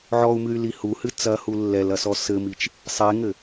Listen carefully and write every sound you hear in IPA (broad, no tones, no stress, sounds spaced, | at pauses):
ʕ ɔ u̯ m ɨ y̯ l i h u h ɨ t͡s ɐ h u lː ɛ l ɐ s ɔ s ɘ m i t͡ʃ | sˤ e ŋ ɘ